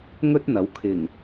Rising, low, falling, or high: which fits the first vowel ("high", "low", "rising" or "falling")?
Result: high